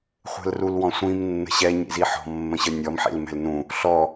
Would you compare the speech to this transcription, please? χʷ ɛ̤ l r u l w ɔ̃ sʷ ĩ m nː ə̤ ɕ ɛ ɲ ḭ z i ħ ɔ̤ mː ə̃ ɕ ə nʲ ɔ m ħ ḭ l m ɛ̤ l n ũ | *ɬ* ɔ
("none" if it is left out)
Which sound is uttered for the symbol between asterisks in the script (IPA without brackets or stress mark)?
ɬ